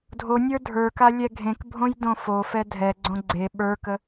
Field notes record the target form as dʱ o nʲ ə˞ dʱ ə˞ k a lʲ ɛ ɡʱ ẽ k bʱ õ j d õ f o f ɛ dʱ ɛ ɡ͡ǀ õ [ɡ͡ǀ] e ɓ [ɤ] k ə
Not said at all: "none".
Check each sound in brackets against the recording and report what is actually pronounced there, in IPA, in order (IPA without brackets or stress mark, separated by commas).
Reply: ɡ͡ǀ, ə˞